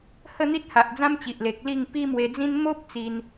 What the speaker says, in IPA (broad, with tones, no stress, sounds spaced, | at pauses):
h ə˥˧ n̪ i˦ t̚ h a˨ ʔ d͡z ã˦ m t͡ɕ i˨ ʔ l e˨ k̚ l i˥˧ ŋ p i˦ m w e˧ d͡z ĩ˦ n m o˦ p̚ t͡s i˧ n